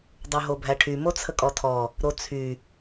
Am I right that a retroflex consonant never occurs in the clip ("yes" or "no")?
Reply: no